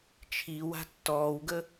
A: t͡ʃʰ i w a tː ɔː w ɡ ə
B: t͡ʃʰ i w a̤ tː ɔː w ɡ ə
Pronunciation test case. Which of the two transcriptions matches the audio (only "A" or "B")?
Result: B